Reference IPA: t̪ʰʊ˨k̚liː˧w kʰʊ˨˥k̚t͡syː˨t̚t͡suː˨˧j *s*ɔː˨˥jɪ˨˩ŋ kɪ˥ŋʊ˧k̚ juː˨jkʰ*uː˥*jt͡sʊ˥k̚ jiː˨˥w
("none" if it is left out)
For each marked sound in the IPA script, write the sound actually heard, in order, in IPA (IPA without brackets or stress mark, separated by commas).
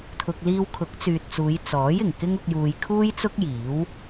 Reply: t͡s, uː˥